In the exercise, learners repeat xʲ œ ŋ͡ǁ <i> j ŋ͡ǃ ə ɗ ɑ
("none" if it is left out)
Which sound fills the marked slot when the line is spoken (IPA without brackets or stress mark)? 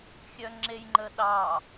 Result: e